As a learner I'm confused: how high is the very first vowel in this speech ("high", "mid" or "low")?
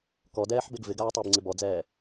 mid